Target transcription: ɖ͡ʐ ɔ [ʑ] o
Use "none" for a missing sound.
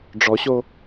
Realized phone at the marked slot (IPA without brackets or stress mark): ɕ